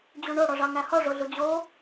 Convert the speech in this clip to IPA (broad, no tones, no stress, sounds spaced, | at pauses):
d͡ʑ u ɳ o ɽ ɔ ʐ ɑ ŋ æ h ɔ ʐ o ɮ u d͡ʑ o